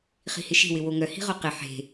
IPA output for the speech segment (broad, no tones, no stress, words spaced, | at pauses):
χi̤hɪʃe̤wɪ woŋœhi̤ ʁoqɪ ħe̤